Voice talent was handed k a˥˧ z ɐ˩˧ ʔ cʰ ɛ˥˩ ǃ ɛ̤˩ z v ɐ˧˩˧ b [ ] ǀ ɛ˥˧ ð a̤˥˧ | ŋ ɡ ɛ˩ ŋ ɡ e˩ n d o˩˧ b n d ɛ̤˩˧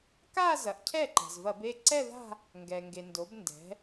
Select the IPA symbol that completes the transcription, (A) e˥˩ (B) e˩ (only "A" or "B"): A